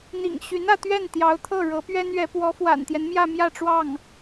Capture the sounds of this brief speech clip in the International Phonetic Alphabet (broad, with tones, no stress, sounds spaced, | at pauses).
n̪ ḭ˨˩ ŋ ɕ y˧˥ n ä˥˧ t̪ ɥ ɛ˥˩ n t̪ j ɑ˧˥ ʊ̯ t̪ʰ ɤ˥˩ ɻ ɤ˧˥ p ɥ ɛ˥ n ɥ ɛ˧˥ p w ɔ˧˥ f w a̰˨˩ n t̪ j ɛ˦ n m j ä˥˧ m j ä˥˧ ʈ͡ʂ w ɑ˥˩ ŋ